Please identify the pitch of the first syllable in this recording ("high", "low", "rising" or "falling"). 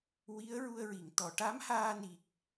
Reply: rising